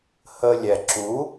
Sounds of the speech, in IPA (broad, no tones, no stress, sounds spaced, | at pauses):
h əː lʲ ɛ ǁ u